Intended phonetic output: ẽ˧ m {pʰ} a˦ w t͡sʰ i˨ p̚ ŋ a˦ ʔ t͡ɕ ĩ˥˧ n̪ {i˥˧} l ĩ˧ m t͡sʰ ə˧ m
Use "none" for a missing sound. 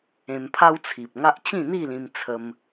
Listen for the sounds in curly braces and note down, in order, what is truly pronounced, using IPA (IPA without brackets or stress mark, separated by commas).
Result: pʰ, i˥˧